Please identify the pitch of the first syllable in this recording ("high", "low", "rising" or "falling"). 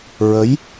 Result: rising